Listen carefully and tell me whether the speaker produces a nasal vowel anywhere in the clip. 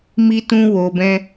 yes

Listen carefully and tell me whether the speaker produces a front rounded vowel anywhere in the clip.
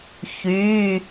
yes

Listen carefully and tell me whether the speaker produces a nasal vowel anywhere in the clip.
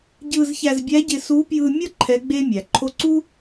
no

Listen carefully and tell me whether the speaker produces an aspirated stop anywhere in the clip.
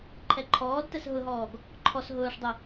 yes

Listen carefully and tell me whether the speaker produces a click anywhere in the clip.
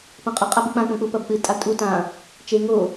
no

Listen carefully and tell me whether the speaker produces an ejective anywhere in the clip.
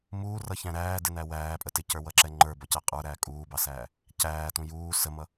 yes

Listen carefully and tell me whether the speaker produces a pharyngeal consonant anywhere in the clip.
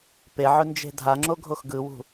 yes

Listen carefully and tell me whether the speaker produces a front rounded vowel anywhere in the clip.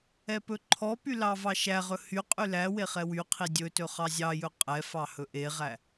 yes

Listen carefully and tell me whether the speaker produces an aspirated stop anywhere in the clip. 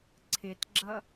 yes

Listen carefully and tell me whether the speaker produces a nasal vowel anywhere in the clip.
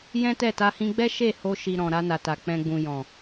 yes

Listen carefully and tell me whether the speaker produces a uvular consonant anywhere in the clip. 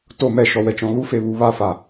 no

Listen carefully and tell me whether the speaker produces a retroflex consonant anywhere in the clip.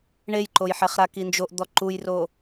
yes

